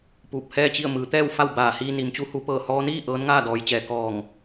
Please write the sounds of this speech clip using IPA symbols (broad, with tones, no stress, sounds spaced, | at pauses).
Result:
p uː˧˩ p̚ h ɛː˥˨ t͡ɕ i˥˨ ə̯ m ɯː˩˧ t̪ ɛː˥˨ w f a˥˨ w b aː˧˩ h iː˧ n i˩ m t͡ɕ u˧˥ h u˩˧ p ɤː˧˩ h ɔː˧ n iː˥˨ ʔ ɤː˧˥ n ŋ aː˥˨ d ɔː˩˧ j t͡ɕ ɛː˩ k ɔː˧˩ ŋ